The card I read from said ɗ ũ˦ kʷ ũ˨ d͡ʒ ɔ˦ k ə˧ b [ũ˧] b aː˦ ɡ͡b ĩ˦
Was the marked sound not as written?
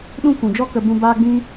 no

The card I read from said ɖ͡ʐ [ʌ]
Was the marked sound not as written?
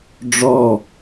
yes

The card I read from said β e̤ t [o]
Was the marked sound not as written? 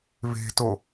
no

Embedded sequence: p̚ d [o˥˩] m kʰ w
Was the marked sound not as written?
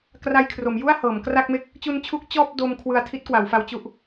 yes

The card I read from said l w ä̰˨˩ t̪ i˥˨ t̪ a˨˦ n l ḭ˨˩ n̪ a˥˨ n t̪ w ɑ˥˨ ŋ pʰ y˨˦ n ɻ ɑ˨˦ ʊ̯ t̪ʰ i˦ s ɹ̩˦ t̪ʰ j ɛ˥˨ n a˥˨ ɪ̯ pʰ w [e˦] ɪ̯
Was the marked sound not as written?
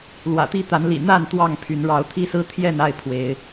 yes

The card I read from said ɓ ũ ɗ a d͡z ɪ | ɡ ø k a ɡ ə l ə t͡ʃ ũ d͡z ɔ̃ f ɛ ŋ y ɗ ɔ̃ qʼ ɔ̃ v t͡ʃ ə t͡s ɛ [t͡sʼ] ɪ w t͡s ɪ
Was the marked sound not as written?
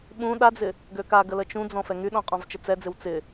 yes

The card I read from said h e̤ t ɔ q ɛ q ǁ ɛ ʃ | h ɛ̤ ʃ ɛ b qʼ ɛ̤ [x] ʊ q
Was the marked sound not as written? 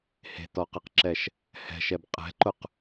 yes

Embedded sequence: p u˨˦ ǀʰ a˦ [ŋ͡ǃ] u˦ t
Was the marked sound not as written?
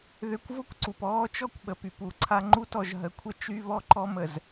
no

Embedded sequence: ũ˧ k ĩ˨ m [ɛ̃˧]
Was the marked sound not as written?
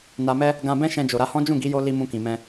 no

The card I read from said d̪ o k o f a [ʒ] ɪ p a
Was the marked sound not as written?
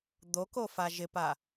no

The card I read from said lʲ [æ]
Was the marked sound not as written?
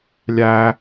no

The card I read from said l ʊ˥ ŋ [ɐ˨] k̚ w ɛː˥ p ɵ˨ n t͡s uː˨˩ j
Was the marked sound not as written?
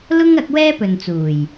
yes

